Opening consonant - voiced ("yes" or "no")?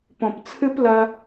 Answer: no